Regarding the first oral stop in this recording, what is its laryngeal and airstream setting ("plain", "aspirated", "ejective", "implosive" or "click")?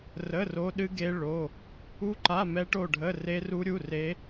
implosive